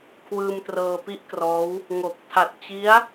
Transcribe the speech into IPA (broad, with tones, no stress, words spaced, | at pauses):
kʰwɯː˧mtrɤː˧pi˥˩ʔkrɔː˦˥w | ŋo˨˩k̚ tʰa˨˩t̚ t͡ɕi˦˥a̯